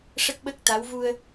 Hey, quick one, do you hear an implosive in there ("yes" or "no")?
yes